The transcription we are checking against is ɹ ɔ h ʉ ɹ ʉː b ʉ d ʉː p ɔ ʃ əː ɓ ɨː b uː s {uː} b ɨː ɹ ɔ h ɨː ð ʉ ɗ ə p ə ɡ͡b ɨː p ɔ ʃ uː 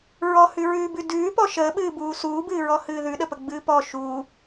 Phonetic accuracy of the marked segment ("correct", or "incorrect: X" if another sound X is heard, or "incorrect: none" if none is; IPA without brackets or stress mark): correct